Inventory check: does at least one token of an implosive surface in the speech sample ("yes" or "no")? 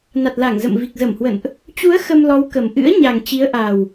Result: no